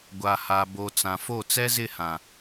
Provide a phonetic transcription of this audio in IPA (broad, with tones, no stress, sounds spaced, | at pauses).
ɡʷ a˨ h a˨ b o˨ t͡s ã˨ f o˦˨ t͡s ɛ˦ z ɪ˦˨ h ã˨